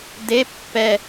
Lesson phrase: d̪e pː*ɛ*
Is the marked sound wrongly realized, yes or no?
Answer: no